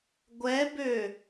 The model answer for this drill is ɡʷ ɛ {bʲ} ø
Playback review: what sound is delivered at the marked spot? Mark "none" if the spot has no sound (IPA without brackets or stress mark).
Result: b